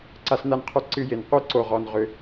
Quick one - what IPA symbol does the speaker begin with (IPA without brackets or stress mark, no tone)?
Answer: ǀ